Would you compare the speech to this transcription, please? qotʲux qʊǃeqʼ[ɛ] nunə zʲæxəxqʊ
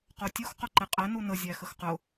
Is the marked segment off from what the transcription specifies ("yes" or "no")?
no